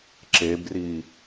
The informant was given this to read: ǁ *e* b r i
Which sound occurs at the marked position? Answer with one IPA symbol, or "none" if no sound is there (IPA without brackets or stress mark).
e